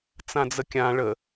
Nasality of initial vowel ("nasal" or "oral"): nasal